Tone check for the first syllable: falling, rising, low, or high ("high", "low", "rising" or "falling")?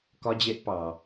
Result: high